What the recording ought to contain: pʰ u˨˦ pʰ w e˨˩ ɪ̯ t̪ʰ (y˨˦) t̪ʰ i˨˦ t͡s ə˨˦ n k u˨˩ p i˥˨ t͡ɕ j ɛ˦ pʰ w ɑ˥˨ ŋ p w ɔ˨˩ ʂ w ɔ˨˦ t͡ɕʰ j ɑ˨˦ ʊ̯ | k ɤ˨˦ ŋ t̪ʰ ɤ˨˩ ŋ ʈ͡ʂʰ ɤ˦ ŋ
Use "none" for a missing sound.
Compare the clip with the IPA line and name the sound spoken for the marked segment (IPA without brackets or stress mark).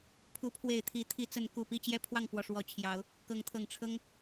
i˨˦